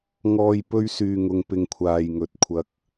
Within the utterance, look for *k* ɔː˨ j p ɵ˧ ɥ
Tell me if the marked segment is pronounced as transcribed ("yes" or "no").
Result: no